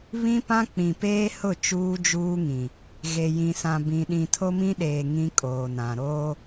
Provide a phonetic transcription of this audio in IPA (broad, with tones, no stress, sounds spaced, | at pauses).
β ĩ˦ p ã˦ k͡p ĩ˨ p eː˦ h ʊ˦˨ t͡ʃ uː˦ d͡ʒ uː˦ ŋ ĩ˨ | ɣ e˨ j ĩ˨ s ã˨ b ĩ˨ ɗ ĩ˨ tʰ o˦ m ĩ˦ ɗ eː˨ ŋ ĩ˦ kʼ oː˨ n ã˨ ɾ oː˦